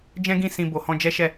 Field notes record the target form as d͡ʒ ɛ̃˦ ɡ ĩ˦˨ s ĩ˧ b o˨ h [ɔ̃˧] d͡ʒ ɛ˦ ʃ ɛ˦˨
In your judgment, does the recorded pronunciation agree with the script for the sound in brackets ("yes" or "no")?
yes